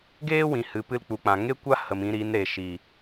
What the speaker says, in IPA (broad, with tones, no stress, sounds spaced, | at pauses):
ɡ eː˦ w ĩ˨ h ɨ˨ p ɨ˧ l k͡p u˨ k͡p ã˨ ŋ e˦ kʷ a˦ h ə˨ m ĩ˧ ɾ i˨˦ n ɾ e˨ ʃ i˨